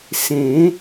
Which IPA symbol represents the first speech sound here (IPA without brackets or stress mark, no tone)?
s